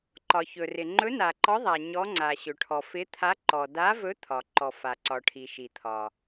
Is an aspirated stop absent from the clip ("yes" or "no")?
no